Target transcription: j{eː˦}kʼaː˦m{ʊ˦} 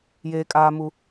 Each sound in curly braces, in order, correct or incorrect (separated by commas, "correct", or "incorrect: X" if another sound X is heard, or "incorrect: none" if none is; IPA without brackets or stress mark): correct, incorrect: u˦